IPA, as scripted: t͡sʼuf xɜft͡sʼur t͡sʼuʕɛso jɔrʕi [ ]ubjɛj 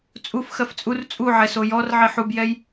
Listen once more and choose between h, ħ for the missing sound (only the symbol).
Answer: ħ